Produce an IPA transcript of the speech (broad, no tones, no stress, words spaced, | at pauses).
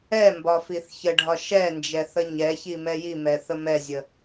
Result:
ɛmbɒ fiθçəɖʱɒ ʃɛnd͡ʒɛ θəɲɛçi mɛjimɛ θəmɛzʲə